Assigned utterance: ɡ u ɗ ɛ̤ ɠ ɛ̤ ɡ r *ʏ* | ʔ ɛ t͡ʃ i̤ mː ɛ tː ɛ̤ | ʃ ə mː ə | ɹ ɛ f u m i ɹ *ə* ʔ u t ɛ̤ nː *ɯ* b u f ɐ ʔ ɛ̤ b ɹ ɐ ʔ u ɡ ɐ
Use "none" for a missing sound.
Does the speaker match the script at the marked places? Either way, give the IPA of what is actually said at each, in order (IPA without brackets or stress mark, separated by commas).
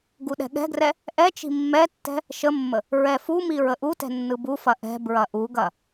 ɛ, ə, ɯ